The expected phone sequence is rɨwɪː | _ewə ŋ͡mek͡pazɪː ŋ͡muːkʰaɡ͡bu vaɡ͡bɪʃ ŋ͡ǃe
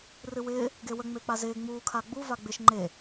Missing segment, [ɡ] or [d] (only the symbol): ɡ